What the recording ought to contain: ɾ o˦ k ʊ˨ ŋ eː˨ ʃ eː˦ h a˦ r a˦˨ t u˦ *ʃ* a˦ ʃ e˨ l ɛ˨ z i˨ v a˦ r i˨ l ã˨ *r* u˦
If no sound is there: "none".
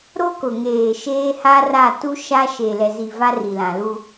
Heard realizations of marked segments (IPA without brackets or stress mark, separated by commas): ʃ, l